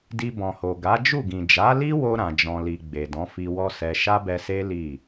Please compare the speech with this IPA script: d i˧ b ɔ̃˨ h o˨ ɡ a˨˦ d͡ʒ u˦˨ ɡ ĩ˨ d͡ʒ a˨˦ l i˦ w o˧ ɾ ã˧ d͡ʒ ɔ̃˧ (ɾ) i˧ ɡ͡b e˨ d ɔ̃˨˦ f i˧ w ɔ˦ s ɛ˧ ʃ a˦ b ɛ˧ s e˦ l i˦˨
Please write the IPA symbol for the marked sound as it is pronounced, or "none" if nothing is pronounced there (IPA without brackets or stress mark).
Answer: l